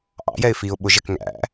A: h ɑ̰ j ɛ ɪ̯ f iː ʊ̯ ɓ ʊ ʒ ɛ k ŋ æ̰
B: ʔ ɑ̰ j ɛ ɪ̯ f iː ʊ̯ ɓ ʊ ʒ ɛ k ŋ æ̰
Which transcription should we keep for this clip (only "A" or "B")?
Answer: B